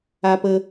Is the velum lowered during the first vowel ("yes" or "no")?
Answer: no